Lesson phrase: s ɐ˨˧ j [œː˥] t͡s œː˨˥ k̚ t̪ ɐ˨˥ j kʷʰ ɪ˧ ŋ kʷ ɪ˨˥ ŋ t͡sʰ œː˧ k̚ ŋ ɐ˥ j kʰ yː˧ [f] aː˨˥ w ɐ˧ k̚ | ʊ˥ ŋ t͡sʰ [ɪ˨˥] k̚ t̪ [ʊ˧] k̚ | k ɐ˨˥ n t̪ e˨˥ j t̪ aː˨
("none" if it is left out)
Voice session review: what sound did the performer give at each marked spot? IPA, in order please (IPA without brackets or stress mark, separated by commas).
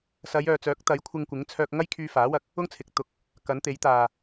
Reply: œː˨, f, ɪ˨, ʊ˧